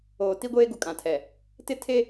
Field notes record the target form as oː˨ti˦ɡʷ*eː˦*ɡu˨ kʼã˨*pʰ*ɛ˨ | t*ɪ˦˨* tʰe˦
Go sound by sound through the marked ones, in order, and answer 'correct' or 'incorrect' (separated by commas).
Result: correct, incorrect, incorrect